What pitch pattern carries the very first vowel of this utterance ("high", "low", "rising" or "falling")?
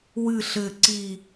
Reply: falling